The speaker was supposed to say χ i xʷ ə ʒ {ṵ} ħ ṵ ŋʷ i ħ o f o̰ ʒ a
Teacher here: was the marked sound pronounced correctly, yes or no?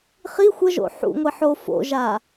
no